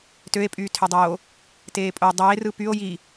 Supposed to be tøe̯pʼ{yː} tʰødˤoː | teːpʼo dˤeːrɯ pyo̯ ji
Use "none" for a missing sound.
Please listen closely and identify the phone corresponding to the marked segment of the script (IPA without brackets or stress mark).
yː